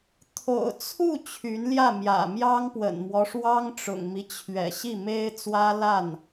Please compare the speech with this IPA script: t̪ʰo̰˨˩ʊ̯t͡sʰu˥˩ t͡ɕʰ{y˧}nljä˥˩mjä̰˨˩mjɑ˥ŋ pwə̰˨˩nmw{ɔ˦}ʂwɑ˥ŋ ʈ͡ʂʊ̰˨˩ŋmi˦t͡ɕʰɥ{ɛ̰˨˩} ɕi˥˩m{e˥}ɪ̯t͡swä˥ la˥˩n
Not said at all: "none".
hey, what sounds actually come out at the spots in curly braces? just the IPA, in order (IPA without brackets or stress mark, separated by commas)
y˧˥, ɔ˦, ɛ̰˨˩, e˥